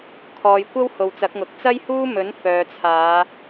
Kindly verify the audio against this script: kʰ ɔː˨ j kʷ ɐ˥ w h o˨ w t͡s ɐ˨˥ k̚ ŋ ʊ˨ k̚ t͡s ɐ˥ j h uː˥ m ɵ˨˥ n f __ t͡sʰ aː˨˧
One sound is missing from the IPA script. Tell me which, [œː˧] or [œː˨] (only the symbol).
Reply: œː˨